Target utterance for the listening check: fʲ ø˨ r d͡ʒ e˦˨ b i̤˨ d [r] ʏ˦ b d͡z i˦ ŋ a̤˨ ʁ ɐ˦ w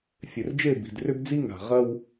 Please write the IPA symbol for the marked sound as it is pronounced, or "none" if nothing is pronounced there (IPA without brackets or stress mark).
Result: r